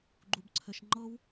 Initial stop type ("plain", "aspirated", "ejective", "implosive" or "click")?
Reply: click